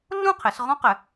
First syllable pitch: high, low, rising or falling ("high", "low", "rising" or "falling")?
falling